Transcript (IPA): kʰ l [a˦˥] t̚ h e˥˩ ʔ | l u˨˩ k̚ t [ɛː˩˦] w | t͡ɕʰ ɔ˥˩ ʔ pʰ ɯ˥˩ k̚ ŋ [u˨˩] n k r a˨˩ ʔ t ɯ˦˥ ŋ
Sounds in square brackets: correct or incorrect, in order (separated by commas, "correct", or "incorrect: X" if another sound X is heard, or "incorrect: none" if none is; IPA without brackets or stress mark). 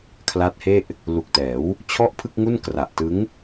correct, correct, incorrect: u˥˩